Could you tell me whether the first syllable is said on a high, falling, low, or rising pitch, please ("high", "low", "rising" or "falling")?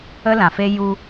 high